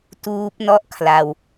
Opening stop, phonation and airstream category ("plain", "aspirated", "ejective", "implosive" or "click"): plain